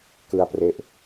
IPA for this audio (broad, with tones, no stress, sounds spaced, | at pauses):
k ɯ˧ a̯ p r e˦˥ ʔ